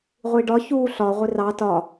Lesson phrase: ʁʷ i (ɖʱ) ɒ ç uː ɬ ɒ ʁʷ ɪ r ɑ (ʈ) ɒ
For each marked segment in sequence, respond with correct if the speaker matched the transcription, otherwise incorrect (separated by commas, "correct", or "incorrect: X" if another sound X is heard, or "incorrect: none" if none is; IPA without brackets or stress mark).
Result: incorrect: ɖ, incorrect: t